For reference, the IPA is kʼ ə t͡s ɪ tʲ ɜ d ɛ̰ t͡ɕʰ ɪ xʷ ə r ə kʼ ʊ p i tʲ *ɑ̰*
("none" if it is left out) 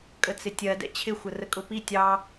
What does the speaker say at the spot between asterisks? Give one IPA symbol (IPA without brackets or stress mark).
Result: ɑ